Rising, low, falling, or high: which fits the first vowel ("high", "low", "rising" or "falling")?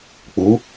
rising